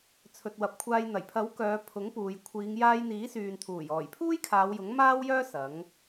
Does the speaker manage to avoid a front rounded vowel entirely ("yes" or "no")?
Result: no